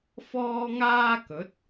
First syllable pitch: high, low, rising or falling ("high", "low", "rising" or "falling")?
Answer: high